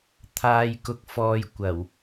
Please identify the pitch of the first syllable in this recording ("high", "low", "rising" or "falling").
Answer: low